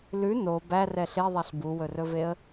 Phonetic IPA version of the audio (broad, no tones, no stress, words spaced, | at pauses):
lʉ no bærɛ ɬeðˤɛɬ buwɵrɵveə̯